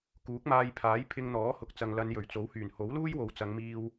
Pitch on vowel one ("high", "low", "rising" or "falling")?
rising